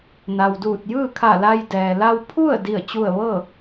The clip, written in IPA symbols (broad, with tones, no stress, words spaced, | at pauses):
na˩wduː˧˩t̚ jɯː˥˨kʰa˧˩la˧j dɛː˩la˧w pʰu˥˨ə̯ di˥˨ə̯t͡ɕu˥˨ə̯ ʋɤː˥˨